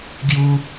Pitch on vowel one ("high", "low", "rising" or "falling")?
high